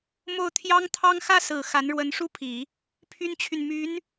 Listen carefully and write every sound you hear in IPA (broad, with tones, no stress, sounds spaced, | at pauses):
m o˥˩ ʊ̯ t̪ʰ j ɑ˥ ŋ t̪ʰ ɑ˥ ŋ x ä˥˩ s ɹ̩˨˩ x a˧˥ n ɻ w ə˧˥ n ʂ u˥ pʰ i˨˩˦ | pʰ y˥ n t͡ɕʰ y˨ n m y˧˥ n